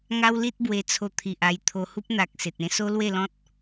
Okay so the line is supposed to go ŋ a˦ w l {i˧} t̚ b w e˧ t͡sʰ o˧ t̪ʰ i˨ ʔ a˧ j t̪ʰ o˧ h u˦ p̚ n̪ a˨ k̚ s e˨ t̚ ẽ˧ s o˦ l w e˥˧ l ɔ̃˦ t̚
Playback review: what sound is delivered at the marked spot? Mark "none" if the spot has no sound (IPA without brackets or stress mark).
i˦